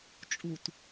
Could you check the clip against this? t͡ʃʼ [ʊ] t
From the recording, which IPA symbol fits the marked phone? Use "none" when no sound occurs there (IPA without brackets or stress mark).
u